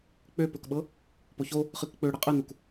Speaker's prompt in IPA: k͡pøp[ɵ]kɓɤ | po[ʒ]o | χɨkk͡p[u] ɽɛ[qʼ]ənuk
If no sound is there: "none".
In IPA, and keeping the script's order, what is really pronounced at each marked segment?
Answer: ɵ, ç, ø, qʼ

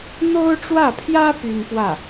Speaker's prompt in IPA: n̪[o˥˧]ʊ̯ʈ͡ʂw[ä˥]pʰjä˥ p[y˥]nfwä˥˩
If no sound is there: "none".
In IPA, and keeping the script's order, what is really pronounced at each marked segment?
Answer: o˥, ä˥˩, y˥

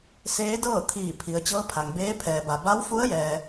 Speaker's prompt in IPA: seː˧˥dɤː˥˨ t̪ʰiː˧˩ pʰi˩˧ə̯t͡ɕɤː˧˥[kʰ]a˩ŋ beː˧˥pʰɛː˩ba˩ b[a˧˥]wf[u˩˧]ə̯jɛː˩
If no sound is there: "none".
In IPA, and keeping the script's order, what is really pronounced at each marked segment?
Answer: pʰ, a˧˥, u˧˥

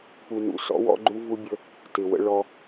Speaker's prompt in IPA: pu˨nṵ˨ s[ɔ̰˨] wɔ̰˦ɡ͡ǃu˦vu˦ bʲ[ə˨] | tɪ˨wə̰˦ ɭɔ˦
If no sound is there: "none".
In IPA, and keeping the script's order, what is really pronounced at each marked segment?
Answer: ɔ̰˦, ə˦

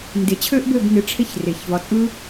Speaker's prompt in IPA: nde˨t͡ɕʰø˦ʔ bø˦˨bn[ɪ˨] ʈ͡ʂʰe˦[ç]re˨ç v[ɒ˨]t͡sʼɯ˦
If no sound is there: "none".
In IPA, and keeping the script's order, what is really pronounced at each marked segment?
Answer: ɪ˨˦, ç, ɒ˨

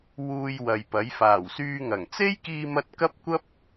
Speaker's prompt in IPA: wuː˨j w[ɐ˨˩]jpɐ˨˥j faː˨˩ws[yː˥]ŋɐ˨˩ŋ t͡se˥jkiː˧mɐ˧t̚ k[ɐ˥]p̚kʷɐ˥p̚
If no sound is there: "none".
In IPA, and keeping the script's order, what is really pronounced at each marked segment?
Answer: ɐ˨, yː˧, ɐ˥

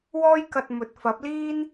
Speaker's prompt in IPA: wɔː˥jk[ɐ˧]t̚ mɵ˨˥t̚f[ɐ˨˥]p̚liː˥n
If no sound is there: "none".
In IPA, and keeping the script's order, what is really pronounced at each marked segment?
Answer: ɐ˧, ɐ˨˥

